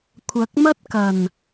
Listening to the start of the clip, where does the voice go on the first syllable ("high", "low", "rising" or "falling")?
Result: rising